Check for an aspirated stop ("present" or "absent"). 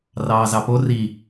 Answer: absent